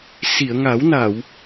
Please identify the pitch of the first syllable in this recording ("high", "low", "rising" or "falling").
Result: low